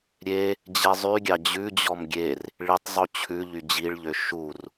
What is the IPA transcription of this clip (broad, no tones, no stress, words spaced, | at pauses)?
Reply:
ɾʲe | d͡ʑɛzˤyɡʲɑ d͡ʑʉd͡ʑɔm ɡʲer | ɭitˤzˤo t͡ɕʰʉ ʎyd͡ʑiɭʎø ʃur